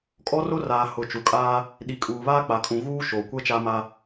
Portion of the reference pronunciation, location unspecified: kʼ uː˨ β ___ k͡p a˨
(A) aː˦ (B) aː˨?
A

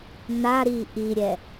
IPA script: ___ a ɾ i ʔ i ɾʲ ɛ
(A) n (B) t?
A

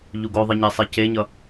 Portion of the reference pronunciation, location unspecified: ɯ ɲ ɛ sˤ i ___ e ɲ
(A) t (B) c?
B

